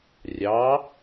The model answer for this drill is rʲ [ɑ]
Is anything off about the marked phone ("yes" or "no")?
no